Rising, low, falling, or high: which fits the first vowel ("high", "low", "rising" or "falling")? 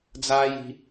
high